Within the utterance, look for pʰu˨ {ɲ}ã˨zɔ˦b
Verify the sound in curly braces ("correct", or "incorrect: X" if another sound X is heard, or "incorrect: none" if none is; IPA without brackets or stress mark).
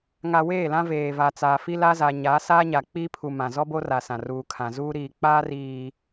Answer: incorrect: m